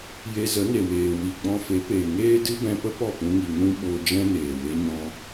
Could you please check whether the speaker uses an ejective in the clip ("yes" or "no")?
no